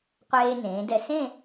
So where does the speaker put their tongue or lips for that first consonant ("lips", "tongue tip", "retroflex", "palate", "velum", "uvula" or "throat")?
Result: uvula